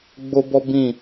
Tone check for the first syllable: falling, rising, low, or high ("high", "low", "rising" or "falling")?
high